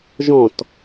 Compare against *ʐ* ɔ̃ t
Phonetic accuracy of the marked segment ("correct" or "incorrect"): incorrect